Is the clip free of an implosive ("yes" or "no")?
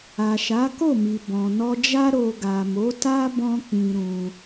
yes